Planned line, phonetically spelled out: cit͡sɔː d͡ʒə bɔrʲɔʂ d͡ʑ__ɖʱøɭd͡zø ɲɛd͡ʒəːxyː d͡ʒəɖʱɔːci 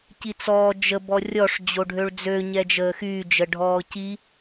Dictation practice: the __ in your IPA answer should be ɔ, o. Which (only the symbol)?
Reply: o